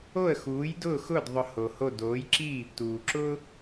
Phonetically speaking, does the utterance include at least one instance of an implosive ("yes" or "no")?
no